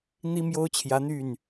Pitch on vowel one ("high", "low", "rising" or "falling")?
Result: high